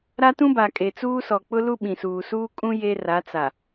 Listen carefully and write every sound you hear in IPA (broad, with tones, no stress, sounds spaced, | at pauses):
ɾ a˦ t ũ˦ b a˨ kʼ e˨ t͡s uː˦ s ɔ˨ k͡p ʊ˦ l u˦ ɓ ĩ˨ s uː˨ s uː˦ kʼ ũ˦ j e˦ r a˨˦ t͡s a˨